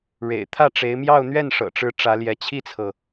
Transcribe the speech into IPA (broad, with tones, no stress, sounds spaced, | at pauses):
ɻ ḛ˨˩ ɪ̯ t̪ʰ ä˥˩ ʈ͡ʂ e˧˥ ɪ̯ m j ɑ˥˧ ʊ̯ n̪ ɥ ɛ˥˩ n ʂ ɤ̰˨˩ ʈ͡ʂ ɻ̩˧˥ ʈ͡ʂ ä˧˥ l j ɛ˧˥ t͡ɕʰ i˥˩ t͡sʰ ɤ˩